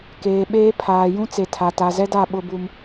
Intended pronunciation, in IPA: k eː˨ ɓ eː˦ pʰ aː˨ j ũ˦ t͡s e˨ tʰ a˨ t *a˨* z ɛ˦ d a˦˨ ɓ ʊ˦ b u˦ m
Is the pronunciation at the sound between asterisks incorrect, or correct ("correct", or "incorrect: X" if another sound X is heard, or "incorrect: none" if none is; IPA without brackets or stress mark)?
correct